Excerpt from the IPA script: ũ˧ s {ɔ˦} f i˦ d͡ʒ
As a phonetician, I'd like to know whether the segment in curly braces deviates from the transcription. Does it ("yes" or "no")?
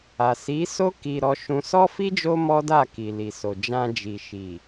no